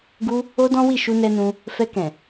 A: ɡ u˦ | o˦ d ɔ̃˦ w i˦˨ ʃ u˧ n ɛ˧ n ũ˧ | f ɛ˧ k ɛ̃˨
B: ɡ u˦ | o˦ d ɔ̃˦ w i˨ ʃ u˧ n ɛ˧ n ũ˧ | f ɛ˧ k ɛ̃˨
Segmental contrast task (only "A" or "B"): A